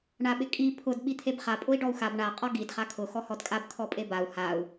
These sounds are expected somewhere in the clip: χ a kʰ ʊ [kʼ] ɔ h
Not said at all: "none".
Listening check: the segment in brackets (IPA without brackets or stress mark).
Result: x